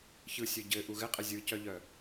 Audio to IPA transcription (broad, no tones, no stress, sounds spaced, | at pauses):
ç ɯ sʲ ɵ ɟ ɘ ʔ u ɣ ɘ qʼ ɘ zʲ ɯ c œ ʎ œ